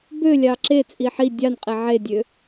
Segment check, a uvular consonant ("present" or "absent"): present